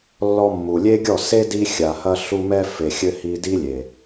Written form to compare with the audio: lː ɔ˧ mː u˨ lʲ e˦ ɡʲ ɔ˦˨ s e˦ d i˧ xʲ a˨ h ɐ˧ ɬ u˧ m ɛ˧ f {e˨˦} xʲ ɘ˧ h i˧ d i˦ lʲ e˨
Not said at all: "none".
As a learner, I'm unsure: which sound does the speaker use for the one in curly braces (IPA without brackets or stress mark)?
e˨